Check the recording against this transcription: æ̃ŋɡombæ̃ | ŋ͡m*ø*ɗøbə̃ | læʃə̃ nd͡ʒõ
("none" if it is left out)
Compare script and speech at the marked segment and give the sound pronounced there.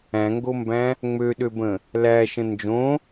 ø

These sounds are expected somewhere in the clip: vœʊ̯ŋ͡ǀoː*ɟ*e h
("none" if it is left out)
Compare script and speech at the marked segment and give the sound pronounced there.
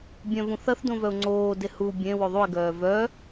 d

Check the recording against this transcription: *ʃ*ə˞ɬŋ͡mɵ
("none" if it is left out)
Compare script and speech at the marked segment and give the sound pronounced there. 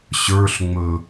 ɕ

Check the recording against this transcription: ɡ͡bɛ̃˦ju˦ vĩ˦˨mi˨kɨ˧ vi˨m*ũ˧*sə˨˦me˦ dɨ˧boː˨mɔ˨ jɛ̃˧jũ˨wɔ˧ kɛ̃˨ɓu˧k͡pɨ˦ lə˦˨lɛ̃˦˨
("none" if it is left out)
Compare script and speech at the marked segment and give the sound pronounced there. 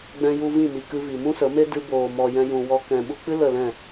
ũ˦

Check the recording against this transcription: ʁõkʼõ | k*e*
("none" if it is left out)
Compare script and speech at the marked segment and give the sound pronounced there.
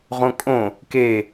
e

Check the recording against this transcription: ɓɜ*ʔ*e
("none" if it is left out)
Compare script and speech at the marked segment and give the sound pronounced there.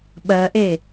ʔ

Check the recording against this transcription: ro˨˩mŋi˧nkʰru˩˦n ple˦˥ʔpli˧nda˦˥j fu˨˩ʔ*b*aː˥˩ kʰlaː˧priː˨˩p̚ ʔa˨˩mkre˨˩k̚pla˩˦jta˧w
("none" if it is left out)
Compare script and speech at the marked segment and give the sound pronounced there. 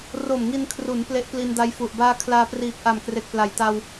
b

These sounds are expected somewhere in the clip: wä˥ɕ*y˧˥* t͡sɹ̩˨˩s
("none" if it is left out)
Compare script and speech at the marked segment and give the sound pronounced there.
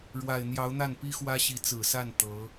i˧˥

